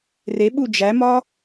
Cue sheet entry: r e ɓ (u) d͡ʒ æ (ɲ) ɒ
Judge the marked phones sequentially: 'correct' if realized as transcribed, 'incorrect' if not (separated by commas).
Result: correct, incorrect